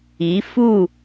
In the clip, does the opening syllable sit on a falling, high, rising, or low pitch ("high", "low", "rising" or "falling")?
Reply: rising